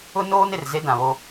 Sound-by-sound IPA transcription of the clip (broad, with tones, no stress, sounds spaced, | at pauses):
ʊ˦ n oː˦ n ɪ˨ r z e˦ d ã˨ β o˦